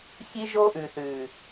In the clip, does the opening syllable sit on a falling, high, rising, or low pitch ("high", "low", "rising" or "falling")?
high